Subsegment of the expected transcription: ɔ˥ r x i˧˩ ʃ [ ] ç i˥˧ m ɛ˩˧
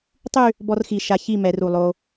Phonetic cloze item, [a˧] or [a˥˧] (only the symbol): a˧